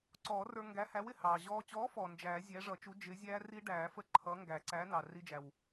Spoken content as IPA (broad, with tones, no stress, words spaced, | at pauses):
ǀɔː˨˩˦rə˞˧ ŋɡæ˨˥hæ˨˥wɪ˩ hɑː˩ʑɔː˧ t͡ɕɔː˨˥fɔ˩ nd͡ʒæː˨˩˦ zʲæ˨˥ʐʌ˨˩˦t͡ʃu˨˥ d͡ʒɪ˨˥ zʲæː˦˥ri˦˥ɖæː˨˩˦fə˦˥ ǃʰʌː˨˥ŋɡæ˨˩˦ǀæː˨˥ nɑ˩ ri˧d͡ʒæ˩w